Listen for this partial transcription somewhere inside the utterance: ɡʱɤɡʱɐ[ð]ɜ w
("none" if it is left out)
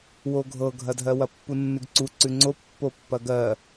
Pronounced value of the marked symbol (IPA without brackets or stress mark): dʱ